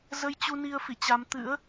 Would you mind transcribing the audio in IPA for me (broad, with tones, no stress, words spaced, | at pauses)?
zə˧jt͡ɕu˧ni˧ə̯ fi˧˩t͡ɕa˧m t̪ɨ̰˧˥ə̯